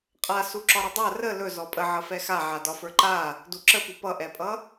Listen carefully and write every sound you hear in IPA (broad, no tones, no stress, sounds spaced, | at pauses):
qʼ a s u ǁ ɒ ɾ ə dˤ a r ə l ɵ z ɔ pʼ ə ʕ ʌ f ɛ x a ʕ a d ɒ f ə˞ ǃ a | d u ǁ ə p u p ʌ ʔ ɛ pʼ ʌ